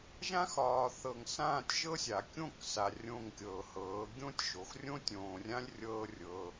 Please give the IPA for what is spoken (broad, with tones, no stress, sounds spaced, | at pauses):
ʒ ã˦ x ɒː˨ θ ɤ˨ ŋ s ãː˦˨ tʲ ʒ ɤ˦ sʲ a˨ kʲ õ˦˨ k s a˨ rʲ õ˦˨ ŋ kʲ ɤː˨ h ɤː˨˦ ɡʲ õ˦ tʲ ʒ o˨ x rʲ õ˦ tʲ õː˨ rʲ ã˦ lʲ rʲ ɤː˧ rʲ ɤ˧